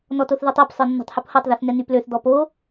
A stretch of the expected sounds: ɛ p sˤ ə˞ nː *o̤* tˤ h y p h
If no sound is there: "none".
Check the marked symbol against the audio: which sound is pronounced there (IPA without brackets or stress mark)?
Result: o̤